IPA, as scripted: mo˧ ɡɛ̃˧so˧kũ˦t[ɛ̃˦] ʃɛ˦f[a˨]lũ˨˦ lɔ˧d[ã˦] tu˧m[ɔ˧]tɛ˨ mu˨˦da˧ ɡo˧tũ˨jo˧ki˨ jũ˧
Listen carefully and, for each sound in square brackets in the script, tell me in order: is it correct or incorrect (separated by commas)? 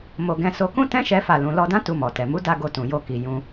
correct, incorrect, correct, incorrect